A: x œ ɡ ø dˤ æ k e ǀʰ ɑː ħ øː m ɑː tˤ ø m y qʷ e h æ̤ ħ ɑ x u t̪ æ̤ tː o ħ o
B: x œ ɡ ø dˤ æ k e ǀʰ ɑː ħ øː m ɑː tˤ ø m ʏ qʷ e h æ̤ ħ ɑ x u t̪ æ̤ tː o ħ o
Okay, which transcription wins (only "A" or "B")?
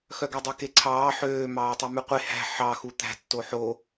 A